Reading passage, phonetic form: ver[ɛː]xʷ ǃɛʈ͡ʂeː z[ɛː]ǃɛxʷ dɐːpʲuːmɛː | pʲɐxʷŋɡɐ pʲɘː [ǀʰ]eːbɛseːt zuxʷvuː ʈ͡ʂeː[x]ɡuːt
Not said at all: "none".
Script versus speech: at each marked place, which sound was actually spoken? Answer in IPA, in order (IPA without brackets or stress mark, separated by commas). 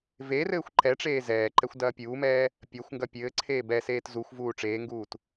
ɘː, ɛː, ǀʰ, ŋ